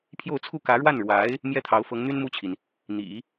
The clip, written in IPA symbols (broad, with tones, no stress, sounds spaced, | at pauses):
pʰ j o˥˧ ʊ̯ t͡sʰ u˥˩ k ä˧˥ ɻ w a˥˩ n ɻ w a˧˥ ɪ̯ | m j ɛ˥ t̪ʰ ɑ˧˥ ʊ̯ f ɤ˧˥ ŋ n̪ y˥ n m u˥˩ t͡ɕʰ i˩ n | n̪ ḭ˨˩˦